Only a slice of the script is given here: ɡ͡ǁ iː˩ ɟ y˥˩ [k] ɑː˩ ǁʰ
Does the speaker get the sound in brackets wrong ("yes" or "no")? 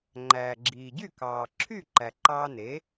no